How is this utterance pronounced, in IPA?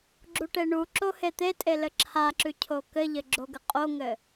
ɡ͡ǁ u ʈ e ɳ u ǁ o h e t̪ e tʼ e l ɘ ǁʰ a ǁ ʉ cʰ o k ɘ ʎ ɘ ɡ͡ǁ o ɡ ə qʼ o ŋ ɘ

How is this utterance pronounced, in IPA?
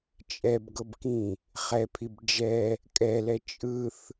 t͡ʃʼ ɛ b ɡ ɤ b k ĩ | χ ɛ pʰ i b d͡ʒ ɛ | kʼ ɛ l ɛ t͡ʃʼ ɯ θ

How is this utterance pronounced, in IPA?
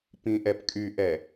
p ĩ ʔ ɛ p kʼ y ʔ ɛ

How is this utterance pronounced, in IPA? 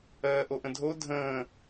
ɜː ʔ o ʔ ə̃ dʱ o dʱ ə̃ː

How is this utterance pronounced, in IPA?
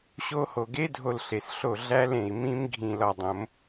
ɕ o˦˥ h o˧˩ ɡ e˦˥ dʱ o˧˩ l ɬ e˩ s ɬ o˧˩ ɮ æ˦˥ l ẽ˩ i̯ m ĩ˦˥ m ɡʱ ĩ˧˩ l ɒ˧˩ dˤ õ˨˩˦ m

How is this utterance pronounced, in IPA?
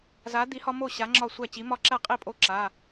z a˨˥ d̪ i˨˥ h ɒ˦ m o˥˩ ɕ a˨˥ ŋ͡ǁ ɒ˥˩ sʷ æ˥˩ t͡ɕ i˨˥ m ɒ˥˩ ǁ æ˥˩ qʼ i˥˩ pʼ o˦ ǁ a˩˧˩

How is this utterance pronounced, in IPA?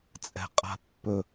t͡sʼ ɛ̤ qʼ a̤ pː ɵ

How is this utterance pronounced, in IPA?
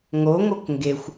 ŋ o ŋ o k ŋ ɡ e xʷ

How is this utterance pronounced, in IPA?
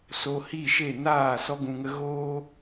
s o˧ h i˦˨ ʃ e˦˨ n aː˦˨ s ɔ˧ ɡ ũ˨ ŋ ə˧ ɣ oː˦

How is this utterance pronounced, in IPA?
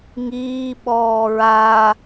ŋ iː ɓ ɔː ɹ a

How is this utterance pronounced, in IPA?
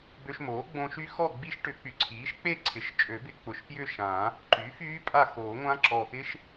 b ø˧ ʃ m oː˩˥ ɡ͡b õ˧ ʃ y˦˥ x ɔ˥˨ ɡ͡b i˦˥ ʃ ʈ ʏ˨˩˦ k͡p y˨˩ ǀʰ iː˩˥ ʃ k͡p e˥˨ ǀʰ ɪ˩˥ ʃ t͡ʃʼ ø˨˩˦ b ɪ˧ k͡p ʊ˨˩ ʃ p j ʏ˥˨ ʃ ã˨˩˦ | ǃ y˩˥ f yː˦˥ pʼ a˥˨ x oː˨˩˦ ŋʷ ã˦˥ ǁ ɔ˨˩ x ɪ˦˥ ʃ

